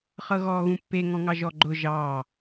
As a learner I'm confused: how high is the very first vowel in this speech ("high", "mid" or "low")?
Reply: mid